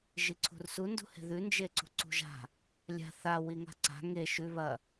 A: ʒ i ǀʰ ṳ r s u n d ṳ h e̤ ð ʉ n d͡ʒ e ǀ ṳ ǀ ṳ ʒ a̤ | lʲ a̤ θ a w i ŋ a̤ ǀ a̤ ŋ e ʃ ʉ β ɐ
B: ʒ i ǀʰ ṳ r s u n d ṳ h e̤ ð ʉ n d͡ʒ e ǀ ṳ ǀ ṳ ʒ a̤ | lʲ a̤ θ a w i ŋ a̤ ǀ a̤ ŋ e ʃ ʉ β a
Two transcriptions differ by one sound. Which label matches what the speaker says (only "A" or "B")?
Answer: A